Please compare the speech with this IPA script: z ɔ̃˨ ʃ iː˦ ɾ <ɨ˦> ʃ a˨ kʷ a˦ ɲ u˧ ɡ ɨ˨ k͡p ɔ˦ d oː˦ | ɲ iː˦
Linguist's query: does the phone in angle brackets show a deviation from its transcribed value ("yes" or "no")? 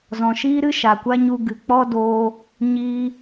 no